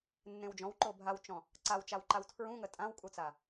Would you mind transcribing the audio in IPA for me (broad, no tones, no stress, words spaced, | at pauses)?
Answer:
nːẽwd͡ʒɔ̃wǃo bʱawt͡ʃɔ̃ | ǀawt͡ʃawǃaw tʰɹũŋə tʼãwkʼut͡sa